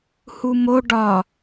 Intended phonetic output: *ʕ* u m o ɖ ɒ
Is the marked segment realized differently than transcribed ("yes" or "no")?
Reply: yes